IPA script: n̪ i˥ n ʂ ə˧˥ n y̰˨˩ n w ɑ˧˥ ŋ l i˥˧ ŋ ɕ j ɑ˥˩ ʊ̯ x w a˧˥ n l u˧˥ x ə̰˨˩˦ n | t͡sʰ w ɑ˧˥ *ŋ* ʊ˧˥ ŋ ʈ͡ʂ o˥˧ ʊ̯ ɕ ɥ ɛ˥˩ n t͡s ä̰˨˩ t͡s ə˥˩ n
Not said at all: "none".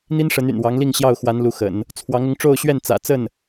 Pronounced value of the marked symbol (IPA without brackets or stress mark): ŋ